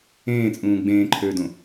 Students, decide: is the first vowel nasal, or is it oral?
nasal